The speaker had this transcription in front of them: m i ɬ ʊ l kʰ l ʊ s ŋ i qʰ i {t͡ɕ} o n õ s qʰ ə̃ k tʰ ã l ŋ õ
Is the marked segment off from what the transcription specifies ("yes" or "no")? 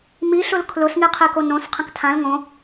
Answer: yes